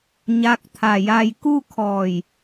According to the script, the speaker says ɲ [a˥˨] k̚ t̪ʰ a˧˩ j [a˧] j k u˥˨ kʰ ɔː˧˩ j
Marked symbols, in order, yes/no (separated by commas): no, yes